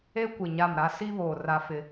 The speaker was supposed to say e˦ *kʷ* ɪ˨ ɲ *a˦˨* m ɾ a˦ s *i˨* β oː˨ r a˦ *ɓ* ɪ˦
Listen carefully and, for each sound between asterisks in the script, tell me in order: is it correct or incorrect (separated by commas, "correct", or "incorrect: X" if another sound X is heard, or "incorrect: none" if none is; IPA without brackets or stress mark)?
correct, correct, incorrect: i˦, incorrect: f